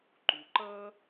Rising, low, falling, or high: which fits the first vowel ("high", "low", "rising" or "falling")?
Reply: low